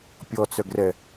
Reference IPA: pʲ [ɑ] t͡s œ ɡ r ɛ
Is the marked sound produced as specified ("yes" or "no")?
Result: no